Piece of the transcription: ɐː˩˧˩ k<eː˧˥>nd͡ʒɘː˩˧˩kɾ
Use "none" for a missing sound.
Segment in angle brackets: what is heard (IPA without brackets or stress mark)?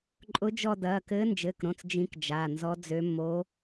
ɘː˧˥